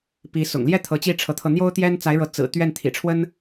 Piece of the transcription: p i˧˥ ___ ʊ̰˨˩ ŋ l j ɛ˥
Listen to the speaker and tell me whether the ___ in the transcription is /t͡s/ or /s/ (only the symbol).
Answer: s